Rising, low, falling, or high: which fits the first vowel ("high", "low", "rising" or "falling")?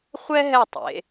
high